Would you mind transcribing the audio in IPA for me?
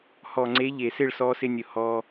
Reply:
h ɔ˨ ŋ͡ǀ e˨˦ ʎ e˨ s ɪ˦˨ ɭ s ɔ˧ s ɪ˧ nʲ ʊ˨ h ɔ˧

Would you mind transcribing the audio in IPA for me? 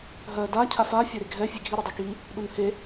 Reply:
ɦ ɜ d a cʰ a f a fʲ a ɾ e ɡʱ ɛ fʲ e ɡʱ i ɾ i dˤ i k i | ɗ u n h e

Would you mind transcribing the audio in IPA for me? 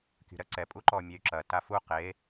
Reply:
kʲ ṳ ɾ ɐ ǀ ɛ pʼ u ǃ ɔ mʲ ɛ y̯ ǁ ɐ t a f u q e

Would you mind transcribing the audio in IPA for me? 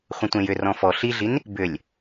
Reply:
χʷ ə̃ tʷ ẽ j ʏ r ɔ̃ f ɔ ɬ i ɮ i n | b ʏ lʲ

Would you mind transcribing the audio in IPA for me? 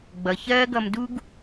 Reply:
ɡ͡b ʌ˨ ç ɜː˦ ɡ ʌ˧ m d u˦ ɡ

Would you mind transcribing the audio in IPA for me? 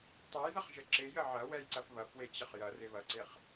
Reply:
tˤ o j ð ɐ χ ʒ ə ǁ ɪ j ə ʕ ɐ w ɛ j ǀ ɐ f β ɐ f w e t͡ɕ ə χ j ɐ r ɪ β ɐ ǀ e χ

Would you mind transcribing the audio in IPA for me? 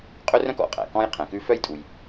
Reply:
qʼ ɵ˥ r œ̃˥ k ɔ̰˩ qʼ æ̰˩ k ɔ̃˥ j qʰ ɛ̃˩ k ʉ˥ f œ˥ j tʼ u˩ j

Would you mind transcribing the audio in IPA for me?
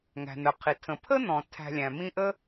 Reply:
ŋ æ̤˩ n̪ ə˩ qʰ i˩ tʰ ə̃˩ pʰ ə˥ n̪ ɔ̃˩ tʰ æ̤˨ lʲ æ̃˩ m ĩ˦ ʔ ə˥

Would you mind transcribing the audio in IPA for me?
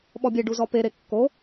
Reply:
ɓ ɔ bʲ e ɖ u z ɔ p e ɾ e kː o

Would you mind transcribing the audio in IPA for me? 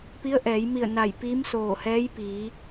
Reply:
p i˧˥ ə̯ ʔ ɛː˩˧ j m i˧˩ ə̯ n a˧˩ j p i˧˥ m s oː˧˩ h ɛː˧˥ j p iː˩˧

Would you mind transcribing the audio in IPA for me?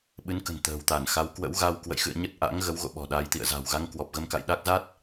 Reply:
ɓ ɨ˨˦ n k ə̤˨˩ n t̪ ə̤ː˨˩ w t̪ a˧˩ n x a˨˦ w k w ə̰˧˥ w ɣ a˧ w k w ə̰˧˨ j x ɨ̰˧˨ ə̯ ɲ ə˦˥ t̚ ʔ a̰˧˥ ŋ ɣ ə˨˦ w ɣ o̰˧˨ ɓ ɔ̤˨˩ ɗ a˨˦ j t̪ ḭ˧˨ ə̯ z a̤˨˩ w ɣ a˧ ŋ k w ɔ˨˩ p̚ ɣ ə˧ m k a̰˧˨ j ɗ a˦˥ k̚ z a˦˥ t̚

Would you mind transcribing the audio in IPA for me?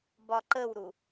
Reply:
b ɒ ǃ ə w ɾ u

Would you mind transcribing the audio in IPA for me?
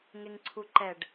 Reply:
ŋ e ŋ ǀʰ u ǃ ɛ ɖ

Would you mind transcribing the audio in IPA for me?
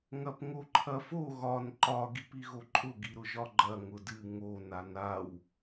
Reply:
ŋ ɐ p ŋ o ǃʰ ɐ f o ɣ ɒ n ǃ ɒ ɡ i p i ɣ o ǃʼ ʊ ɡ i ɾ ʊ ʒ ɒ ɡ͡ǃ ɐ ŋ ʊ d ɨ ŋ o n a n a w

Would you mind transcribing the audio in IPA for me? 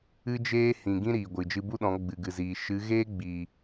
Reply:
ɨ˧ d͡ʒ eː˧ h ĩ˨ ɡ ĩ˦ ɾ iː˨ ɡʷ ɨ˨ d͡ʒ ɨ˧ b u˦ ɗ ɔ̃˨˦ ɡ͡b ɨ˨ ɡ ɨ˨ z iː˨ ʃ ɨ˨˦ ɣ eː˦ ɡ͡b iː˨

